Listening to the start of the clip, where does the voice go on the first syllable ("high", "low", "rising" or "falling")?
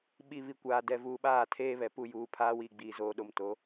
low